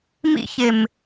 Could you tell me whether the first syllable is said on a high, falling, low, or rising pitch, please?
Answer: high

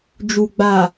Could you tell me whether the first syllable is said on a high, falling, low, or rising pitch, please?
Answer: low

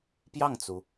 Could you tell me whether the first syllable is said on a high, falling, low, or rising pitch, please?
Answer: falling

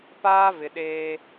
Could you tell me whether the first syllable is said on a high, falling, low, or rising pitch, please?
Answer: high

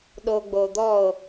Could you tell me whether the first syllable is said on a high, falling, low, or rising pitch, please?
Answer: low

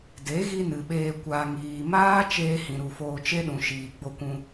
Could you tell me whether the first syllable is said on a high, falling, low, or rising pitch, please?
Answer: rising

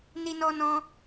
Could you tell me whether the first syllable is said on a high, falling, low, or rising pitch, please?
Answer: high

